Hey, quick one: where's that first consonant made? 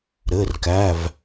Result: tongue tip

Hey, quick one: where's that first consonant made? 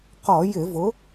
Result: uvula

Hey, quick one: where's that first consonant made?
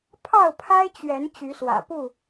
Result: lips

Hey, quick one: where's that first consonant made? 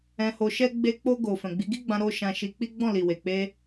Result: throat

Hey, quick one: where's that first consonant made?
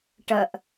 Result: retroflex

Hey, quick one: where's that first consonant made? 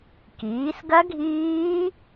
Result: velum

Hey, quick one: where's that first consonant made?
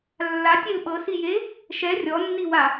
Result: tongue tip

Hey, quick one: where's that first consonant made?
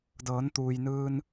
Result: tongue tip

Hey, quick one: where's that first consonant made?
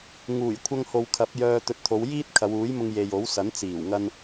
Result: velum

